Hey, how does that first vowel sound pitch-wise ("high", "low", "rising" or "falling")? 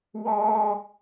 high